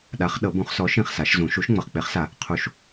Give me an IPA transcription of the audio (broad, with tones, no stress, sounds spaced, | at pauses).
ɗ a˨˥ χ ɗ ɤ˨˩˦ b ũ˨˩˦ χ s ɔ˨˥ ʃ ĩ˥˩ χ s a˨˩˦ ʃ z ũ˨˩˦ ʃ u˨˥ ʃ ŋ͡m ɤ˨ χ k͡p e˨˥ χ s a˨˩˦ | qʰ u˨˩˦ ʃ